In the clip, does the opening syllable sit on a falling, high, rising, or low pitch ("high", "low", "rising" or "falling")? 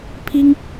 high